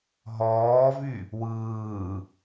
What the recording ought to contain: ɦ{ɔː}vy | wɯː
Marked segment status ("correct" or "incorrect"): correct